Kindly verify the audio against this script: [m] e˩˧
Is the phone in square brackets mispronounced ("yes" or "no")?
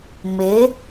no